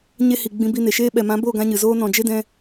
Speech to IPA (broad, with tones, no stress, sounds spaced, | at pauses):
ɲ e˦ h i˨ ɡ͡b ĩ˧ b i˧ n e˨ ʃ eː˦ ɓ ɛ˨ m ã˨˦ b o˦˨ ɡ ã˦ ɲ ɨ˨ z oː˦ n ɔ̃˨ d͡ʒ e˦ d ɛ̃˧